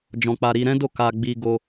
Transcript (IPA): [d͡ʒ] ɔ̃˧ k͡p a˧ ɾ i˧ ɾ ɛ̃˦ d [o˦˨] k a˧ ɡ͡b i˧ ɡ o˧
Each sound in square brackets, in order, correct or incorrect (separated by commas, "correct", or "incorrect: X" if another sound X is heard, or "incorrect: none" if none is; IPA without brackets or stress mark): correct, correct